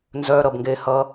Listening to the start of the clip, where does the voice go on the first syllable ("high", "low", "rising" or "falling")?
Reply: high